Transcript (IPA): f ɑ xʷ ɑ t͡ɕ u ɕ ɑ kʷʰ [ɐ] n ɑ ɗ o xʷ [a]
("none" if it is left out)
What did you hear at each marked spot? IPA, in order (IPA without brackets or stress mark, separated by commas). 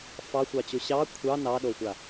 ɑ, a